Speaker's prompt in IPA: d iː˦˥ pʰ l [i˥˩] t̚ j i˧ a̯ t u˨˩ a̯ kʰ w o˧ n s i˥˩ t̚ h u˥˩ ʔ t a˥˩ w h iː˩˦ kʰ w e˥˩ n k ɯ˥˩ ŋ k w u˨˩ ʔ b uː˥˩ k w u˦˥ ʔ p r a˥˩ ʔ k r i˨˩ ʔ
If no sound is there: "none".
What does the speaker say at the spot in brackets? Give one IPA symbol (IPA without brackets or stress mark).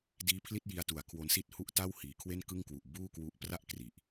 i˥˩